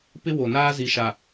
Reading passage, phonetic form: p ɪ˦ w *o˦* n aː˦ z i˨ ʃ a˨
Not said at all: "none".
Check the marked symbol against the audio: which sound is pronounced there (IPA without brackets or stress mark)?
o˨